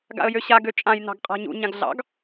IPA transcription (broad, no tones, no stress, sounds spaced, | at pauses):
ɡ a̰ ə̯ j ø ɕ a ɡ ø t͡ʃʼ ã j n ɑ̤ ɡ qʼ a̤ ɲ ṵ ɲ ã ɡ ɮ ɑ̰ ɡ